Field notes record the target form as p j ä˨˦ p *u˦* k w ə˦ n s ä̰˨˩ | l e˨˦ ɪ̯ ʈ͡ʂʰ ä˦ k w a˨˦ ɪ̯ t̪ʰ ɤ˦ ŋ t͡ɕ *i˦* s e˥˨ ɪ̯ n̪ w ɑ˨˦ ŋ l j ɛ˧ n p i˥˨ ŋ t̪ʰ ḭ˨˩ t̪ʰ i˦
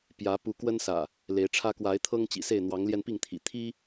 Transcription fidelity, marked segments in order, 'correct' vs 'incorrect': incorrect: u˨˦, incorrect: ḭ˨˩

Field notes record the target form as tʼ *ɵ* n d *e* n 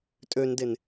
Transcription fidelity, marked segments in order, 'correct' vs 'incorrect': incorrect: ø, correct

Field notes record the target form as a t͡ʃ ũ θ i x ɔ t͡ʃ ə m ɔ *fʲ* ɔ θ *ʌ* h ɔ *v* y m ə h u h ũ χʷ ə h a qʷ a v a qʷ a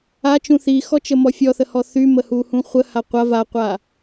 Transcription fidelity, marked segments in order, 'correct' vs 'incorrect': correct, incorrect: ə, incorrect: θ

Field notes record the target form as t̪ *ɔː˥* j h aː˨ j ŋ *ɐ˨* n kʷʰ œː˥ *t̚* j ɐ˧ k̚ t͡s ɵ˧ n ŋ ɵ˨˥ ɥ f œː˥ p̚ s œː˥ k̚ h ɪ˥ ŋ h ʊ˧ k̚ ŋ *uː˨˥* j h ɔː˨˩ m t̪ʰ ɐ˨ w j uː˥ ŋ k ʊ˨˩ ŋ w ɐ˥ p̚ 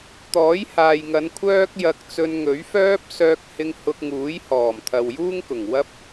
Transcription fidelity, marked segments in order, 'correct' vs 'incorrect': incorrect: ɔː˨˥, incorrect: ɐ˨˧, incorrect: k̚, correct

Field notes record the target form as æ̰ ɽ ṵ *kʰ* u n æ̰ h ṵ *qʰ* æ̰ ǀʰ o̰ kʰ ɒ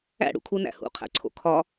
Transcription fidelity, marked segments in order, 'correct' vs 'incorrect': correct, correct

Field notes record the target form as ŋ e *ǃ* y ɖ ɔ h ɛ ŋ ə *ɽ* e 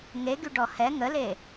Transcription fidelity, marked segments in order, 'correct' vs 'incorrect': incorrect: ɡ, incorrect: l

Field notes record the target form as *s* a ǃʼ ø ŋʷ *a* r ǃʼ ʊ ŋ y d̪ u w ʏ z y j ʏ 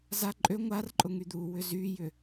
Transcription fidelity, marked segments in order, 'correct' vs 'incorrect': incorrect: z, correct

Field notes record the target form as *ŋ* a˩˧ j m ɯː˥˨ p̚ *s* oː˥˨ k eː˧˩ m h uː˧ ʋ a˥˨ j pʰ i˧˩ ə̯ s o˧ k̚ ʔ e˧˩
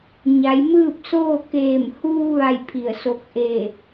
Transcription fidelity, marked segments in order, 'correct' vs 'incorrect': incorrect: ɲ, correct

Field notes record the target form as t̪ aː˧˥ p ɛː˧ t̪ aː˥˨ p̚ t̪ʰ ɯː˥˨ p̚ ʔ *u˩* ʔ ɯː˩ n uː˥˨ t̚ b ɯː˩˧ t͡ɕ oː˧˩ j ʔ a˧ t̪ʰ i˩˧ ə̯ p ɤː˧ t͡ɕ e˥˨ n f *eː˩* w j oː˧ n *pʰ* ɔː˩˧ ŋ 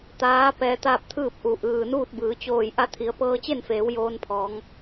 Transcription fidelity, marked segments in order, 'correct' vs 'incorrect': correct, incorrect: eː˩˧, correct

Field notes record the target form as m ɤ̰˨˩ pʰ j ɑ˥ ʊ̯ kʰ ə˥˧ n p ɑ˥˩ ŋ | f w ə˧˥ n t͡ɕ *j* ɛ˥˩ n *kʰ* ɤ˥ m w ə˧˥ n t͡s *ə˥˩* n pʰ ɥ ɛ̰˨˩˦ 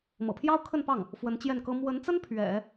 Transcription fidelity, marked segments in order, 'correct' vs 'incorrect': correct, incorrect: k, incorrect: ə˥

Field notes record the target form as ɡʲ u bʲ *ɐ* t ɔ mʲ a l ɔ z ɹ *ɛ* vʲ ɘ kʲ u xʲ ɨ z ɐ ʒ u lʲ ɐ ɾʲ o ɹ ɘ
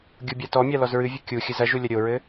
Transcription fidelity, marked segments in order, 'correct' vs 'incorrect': incorrect: a, incorrect: ɨ

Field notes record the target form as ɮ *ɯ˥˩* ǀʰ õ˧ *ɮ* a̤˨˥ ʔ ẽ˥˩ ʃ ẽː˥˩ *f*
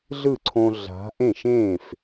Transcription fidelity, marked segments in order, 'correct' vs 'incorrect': correct, correct, correct

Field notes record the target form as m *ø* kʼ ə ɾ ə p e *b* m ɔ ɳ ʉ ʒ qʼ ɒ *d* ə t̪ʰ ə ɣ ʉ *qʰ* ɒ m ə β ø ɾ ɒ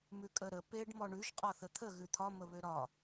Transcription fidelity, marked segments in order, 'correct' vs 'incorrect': incorrect: ʉ, incorrect: ɖ, incorrect: θ, incorrect: t̪ʰ

